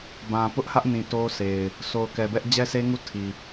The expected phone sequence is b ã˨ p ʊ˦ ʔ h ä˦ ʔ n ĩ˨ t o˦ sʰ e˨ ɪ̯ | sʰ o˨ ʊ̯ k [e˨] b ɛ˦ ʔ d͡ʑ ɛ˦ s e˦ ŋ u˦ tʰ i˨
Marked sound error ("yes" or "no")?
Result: yes